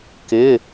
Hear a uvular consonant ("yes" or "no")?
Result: no